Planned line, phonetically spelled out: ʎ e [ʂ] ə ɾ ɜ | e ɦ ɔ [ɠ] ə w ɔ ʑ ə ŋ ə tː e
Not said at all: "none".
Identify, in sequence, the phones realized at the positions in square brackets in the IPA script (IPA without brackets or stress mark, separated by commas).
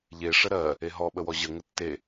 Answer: ʂ, ɓ